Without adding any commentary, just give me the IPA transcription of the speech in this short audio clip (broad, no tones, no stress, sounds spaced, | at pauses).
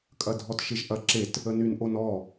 kʼ ɐ dʱ ɔ t ʃ ɪ ʒ ʔ ɐ ǁ e t | ə n y n ʔ o n ɔ